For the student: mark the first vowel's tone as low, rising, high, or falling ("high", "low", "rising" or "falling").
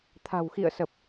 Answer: low